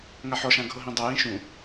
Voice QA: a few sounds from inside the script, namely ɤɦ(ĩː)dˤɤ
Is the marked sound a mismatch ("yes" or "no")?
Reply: yes